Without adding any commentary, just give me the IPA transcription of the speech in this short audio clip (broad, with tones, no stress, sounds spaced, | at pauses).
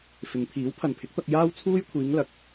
f ɪ˨˧ ŋ t̪ʰ iː˨˥ w pʰ ɐ˨ n pʰ ɪ˨˥ k̚ t̪ ɐ˧ k̚ j aː˥ w t͡sʰ uː˥ j kʷʰ iː˨˧ ŋ l ɐ˨ k̚